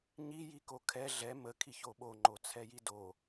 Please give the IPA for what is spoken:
ɲ i j i k o kʰ ɛ ɮ ɛ m ə kʰ i ç o ɓ o ŋ͡ǃ o t͡sʰ ɛ j i d o

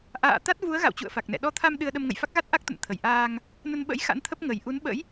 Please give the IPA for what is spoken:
ʔ a̰ː˧˨ t̪ a˦˥ t̚ v u˨˦ ə̯ ɣ a̰˧˨ w t͡ɕ ṵ˧˨ ə̯ f a˨˩ k̚ n ɛ̰˧˨ ɗ ɔ˧ t̪ʰ a˧ m ɗ ɨ˧ ə̯ ɗ ə˧ m ŋ ə̰˧˨ j f a˦˥ k̚ ɣ a˦˥ t̚ ʔ a˦˥ k̚ t̪ ə̰˧˨ n t̪ʰ ə˧˩ j ʔ aː˧ ŋ | n ə˧ n ɓ ə̰˧˥ j x a̰˧˥ n t̪ʰ ə˦˥ p̚ ŋ ə˨˩ j ʔ u˨˦ n ɓ ə̰˧˥ j

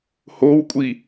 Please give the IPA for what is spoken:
h o w kʷʼ i

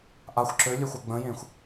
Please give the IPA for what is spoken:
ʔ a xʷ ǁ ø lʲ œ xʷ œ ɡ͡b ə̃ j ẽː xʷ

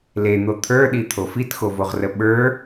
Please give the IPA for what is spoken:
l e n̪ o t̪ʰ ə˞ ɗ i t̪ʰ o f i t x o v o ʁ r ə ɓ ə˞

